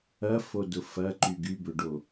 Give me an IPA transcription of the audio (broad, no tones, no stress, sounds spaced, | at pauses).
ɐ f o d ʊ f ɐ ǃ y ɡ y b ø ɖ o